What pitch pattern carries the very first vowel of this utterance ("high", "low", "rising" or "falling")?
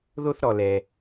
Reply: high